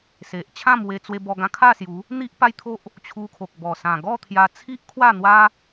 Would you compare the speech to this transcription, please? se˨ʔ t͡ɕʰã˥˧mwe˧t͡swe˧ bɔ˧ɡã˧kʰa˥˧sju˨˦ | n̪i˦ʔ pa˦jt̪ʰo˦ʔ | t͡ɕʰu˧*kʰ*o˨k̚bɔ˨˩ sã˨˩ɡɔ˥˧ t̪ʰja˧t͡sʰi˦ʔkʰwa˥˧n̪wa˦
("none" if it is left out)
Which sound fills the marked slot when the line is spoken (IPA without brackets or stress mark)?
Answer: kʰ